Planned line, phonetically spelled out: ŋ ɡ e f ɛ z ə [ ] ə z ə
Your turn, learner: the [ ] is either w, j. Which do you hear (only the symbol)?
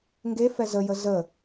j